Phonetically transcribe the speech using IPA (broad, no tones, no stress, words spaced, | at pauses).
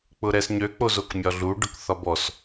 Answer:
k͡pʊɾɛsɲø k͡pozokmʲɒɮu ɖʊkθɒbɔs